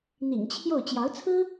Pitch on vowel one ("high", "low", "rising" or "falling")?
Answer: low